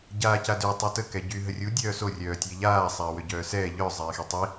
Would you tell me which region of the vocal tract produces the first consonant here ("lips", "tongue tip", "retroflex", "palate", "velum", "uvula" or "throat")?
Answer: palate